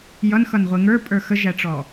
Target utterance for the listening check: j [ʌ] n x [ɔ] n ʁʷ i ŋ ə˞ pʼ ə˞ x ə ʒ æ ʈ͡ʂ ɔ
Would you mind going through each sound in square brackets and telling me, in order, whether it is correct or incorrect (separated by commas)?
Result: correct, incorrect